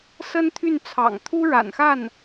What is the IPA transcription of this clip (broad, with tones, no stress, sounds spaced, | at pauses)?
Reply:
s ə˥ n t̪ʰ y˥˩ n t͡sʰ ɑ̰˨˩ ŋ t̪ʰ u˥ ɻ a̰˨˩ n x a˥˩ n